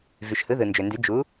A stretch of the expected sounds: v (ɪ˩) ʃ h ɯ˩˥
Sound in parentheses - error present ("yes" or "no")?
yes